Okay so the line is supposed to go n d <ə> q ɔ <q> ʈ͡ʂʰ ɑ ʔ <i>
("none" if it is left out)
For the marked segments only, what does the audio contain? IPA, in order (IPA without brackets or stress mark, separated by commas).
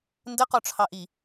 ə, none, i